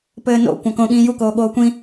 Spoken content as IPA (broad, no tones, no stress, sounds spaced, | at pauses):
p ɘː n o̰ kʷ ã k õ ɠ ĩː j u k oː ɠ oː kʷ ĩ